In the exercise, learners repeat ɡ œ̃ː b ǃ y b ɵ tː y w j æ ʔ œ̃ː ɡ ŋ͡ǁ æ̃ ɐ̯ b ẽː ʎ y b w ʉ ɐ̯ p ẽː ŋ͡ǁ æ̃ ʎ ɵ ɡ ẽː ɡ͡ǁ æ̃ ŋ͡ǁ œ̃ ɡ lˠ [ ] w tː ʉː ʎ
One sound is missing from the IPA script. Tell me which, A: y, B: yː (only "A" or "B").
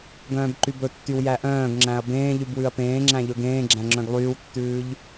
B